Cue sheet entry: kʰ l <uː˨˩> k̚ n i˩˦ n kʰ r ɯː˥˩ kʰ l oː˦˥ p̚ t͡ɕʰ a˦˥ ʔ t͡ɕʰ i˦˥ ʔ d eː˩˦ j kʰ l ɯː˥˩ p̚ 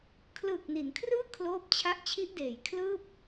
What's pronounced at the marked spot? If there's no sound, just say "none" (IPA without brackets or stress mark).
ɯː˨˩